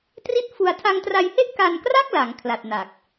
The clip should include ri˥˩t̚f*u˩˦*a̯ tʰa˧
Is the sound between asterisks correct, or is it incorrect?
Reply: incorrect